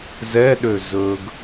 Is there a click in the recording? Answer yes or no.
no